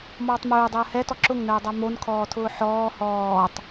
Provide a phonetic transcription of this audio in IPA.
m ɔː tˤ m ʊː dˤ əː h ɛ t ɔ ǁ ʊ ŋ n əː dˤ a m o n kʰ ɔː tʰ ʊː ħ ɔː h ɔː tˤ

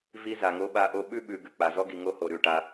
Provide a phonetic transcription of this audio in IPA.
v i˦ z a˨ ŋ o˦ ɓ a˦ ʔ o˦ ɓ ʉ˦ ɓ ʉ˨ ɡ ʉ˨ k͡p a˨ z ɔ˦ ɡ i˨ ŋ o˦ h o˨ ɾ ʉ˦˨ ʈ a˦

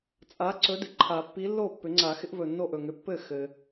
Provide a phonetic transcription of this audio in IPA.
t͡sʼ a˨˥ ǀ ɵ˨˥ d ɪ˩ ǃʰ a˨˩˦ pː i˨˥ lː o˥˩ pː ʏ˨˩˦ ŋ͡ǀ a˨˩˦ x ɪ˨˥ ʔ v ɵ˩ nː o˥˩ ʔ ɵ˥˩ ŋ ʏ˨˥ pː ɘ˥˩ x ɘ˩

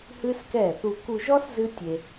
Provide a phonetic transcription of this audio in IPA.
h ɨ˦ s k ɛ˦˨ θ u˧ k u˧ ʒ ɔ˦ s z ɨ˦ tʲ e˧

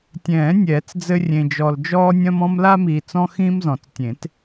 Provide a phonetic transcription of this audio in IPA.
tʲ ɛ̃ː˨˩˦ nʲ ɛː˨˩˦ t͡s d͡z ɘ˦ rʲ ẽ˨ d͡ʒ ɔ˨ l d͡ʒ ɔː˦ nʲ ɐ̃˦ m ɔ̃˦ m l a˦ m iː˨ t͡s ɔ̃˦ x ĩː˦ m z ɔ̃˨˩˦ t͡s tʲ ẽ˨˩˦ t

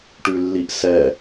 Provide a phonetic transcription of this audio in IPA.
ʈ ʉ lː i ʔ s ɛ

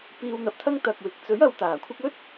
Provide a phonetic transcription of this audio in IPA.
p iː˧ w n̪ ɐ˨ p̚ t̪ʰ ɐ˥ ŋ t̪ ɐ˨ k̚ w ɪ˨ k̚ t͡s ɵ˨˥ ɥ ɐ˨˧ w t̪ aː˨˩ kʷʰ ɪ˥ k̚ ɵ˥ t̚

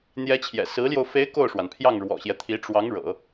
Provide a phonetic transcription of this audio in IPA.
n̪ j ɛ˧˥ t͡ɕʰ j ɛ̰˨˩ s ɹ̩˧˥ l j o˧ ʊ̯ f e˧˥ ɪ̯ k o˥˩ ʊ̯ ʂ w a˩ n pʰ j ɑ˥˩ ŋ ɻ w ɔ̰˨˩ ɕ j ɛ˦ t̪ʰ i˧˥ ʈ͡ʂ w ɑ˧˥ ŋ ɻ ɤ̰˨˩˦

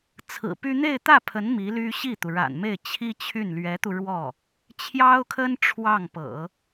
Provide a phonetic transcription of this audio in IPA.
t͡sʰ ɹ̩˨˩ p y˥ n̪ e˥˧ ɪ̯ t̪ ä˥˩ pʰ ə˧˥ n m i˧˥ l y˥ ɕ i˥˩ t̪ u˩ ɻ a̰˨˩ n m e˥˩ ɪ̯ t͡ɕʰ i˥ t͡ɕʰ y˥˩ n l ɥ ɛ˧˥ t̪ u˧ ɻ w ɔ˥˩ | t͡ɕʰ j ɑ˥ ʊ̯ kʰ ə˥ n ʈ͡ʂʰ w ɑ˥˩ ŋ p ɤ̰˨˩˦

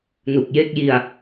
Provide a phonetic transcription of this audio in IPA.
n u˨˩ k̚ j e˦˥ k̚ j i˧ a̯

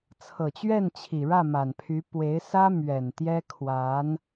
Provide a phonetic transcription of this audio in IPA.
t͡sʰ ɤ˨˩ t͡ɕ ɥ ɛ˥˩ n t͡ɕʰ i˨˩ ɻ ä˥˩ m a˨˩ n pʰ y˧˥ p w e˧˥ ɪ̯ s ä˥ m ɥ ɛ˨˩ n t̪ j ɛ˥ kʰ w a˧˥ n

